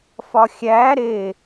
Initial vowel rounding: rounded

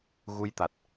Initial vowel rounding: rounded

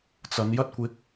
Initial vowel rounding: unrounded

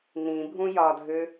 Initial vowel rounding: unrounded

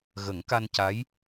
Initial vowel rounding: unrounded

